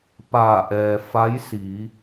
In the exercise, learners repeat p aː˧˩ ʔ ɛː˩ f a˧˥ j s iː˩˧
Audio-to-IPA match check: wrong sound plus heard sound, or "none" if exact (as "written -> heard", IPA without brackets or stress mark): none